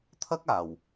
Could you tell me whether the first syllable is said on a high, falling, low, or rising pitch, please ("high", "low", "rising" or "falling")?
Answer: high